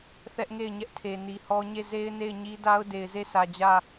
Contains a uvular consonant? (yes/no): no